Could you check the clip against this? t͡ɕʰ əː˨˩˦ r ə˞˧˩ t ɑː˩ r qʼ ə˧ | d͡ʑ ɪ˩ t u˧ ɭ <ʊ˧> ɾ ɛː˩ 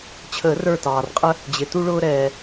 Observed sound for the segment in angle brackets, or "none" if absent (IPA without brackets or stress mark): ʊː˧